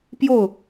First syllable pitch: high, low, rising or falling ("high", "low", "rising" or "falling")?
falling